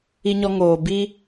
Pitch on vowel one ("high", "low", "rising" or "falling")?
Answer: high